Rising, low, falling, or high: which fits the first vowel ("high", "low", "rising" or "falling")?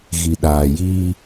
low